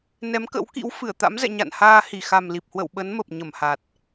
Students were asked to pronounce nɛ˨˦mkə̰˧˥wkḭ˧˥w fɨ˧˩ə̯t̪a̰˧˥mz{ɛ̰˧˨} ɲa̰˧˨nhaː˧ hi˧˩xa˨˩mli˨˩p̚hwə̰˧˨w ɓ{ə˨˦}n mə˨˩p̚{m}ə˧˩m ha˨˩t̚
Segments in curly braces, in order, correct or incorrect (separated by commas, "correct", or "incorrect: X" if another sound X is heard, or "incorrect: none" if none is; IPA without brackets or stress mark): correct, correct, incorrect: ɲ